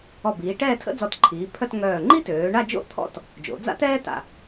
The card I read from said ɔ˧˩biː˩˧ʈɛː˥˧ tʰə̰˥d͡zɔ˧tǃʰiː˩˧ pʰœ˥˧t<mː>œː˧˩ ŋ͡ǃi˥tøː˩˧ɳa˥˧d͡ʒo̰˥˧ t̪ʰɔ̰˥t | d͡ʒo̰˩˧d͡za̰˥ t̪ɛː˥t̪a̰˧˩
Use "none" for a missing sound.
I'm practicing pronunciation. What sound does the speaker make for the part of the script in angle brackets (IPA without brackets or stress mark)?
ŋ